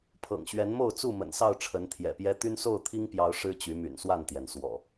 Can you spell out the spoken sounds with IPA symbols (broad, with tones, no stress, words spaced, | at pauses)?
pʰɤ̰˨˩ŋɕɥɛ˨˦nmo˥˨ʊ̯t͡su˥˨ mə̰˨˩nsɑ˥˨ʊ̯ʈ͡ʂʰə˨˦n t̪ʰjɛ̰˨˩pjɛ˦ t̪y˦nso˥˨ʊ̯t̪ʰi˦ŋpjɑ˨˦ʊ̯ ʂɻ̩˦t͡ɕy˨˦my̰˨˩n swa˥˨nt̪jɛ˩nswɔ̰˨˩